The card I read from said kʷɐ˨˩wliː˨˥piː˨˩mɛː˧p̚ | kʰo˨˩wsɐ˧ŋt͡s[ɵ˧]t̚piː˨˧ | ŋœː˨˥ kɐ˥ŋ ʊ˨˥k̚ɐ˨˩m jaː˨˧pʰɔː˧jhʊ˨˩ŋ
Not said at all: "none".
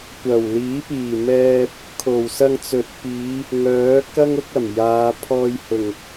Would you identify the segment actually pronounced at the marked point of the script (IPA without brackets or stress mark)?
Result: ɵ˨˥